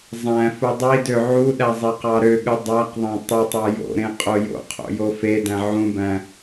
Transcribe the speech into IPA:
zˤ æ̃ f u dˤ i d ø ʕ u ɗ æ zˤ e q ɑ ɾ ø ɠ ɯ dˤ æ q ðˤ æ̃ tˤ e tˤ ɑ j o̰ ɾ ẽ qʼ o j o̰ qʰ o̰ j o f e d æ̃ ʕ ũ b æ̃

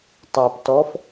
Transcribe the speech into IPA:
tˤ æ p t ɔ f

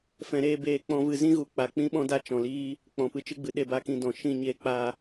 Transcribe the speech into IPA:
f ɛ̃˧ ɾ eː˦ b eː˧ k͡p ɔ̃˦ v ɨ˧ z ĩ˦ ɣ u˨ k͡p a˨ k͡p ĩ˦ ɓ ɔ̃˦ d a˧ t͡ʃ ɔ̃˨ l iː˦ | k͡p ɔ̃˨ p ɨ˧ t͡ʃ ɨ˦ ɡ͡b ɨ˨ ɗ e˧ b a˦ k ĩ˧ d ɔ̃˨ ʃ ĩ˦˨ ɲ e˧ k͡p a˧

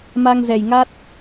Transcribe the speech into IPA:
m a˧ ŋ z ɛ˨˩ j ŋ a˦˥ t̚

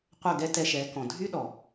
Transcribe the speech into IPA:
qʷ œ˦˨ ɡ ɛ˦ t ɛ˧ ʃ ɛ˨˦ k ɔ̃˨ dʱ y˦ ɗ ɔ˨

